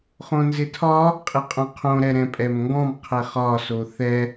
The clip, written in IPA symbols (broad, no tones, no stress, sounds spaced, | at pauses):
χ õ n z ɪ tʰ ɒ | qʼ ɪ qʼ õ qʰ õ ɾ ɛ ɾ ɛ̃ pʼ ɛ m ŋ ɡ ɔ̃ m qʰ ɛ χ ɒ s o θ ɛ